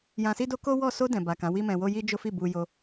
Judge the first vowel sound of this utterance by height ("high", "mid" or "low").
low